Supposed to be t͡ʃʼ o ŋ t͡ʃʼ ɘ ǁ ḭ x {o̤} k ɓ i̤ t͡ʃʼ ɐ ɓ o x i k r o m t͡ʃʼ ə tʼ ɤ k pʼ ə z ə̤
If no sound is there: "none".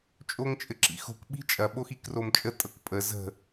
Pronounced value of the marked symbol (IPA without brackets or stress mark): o̤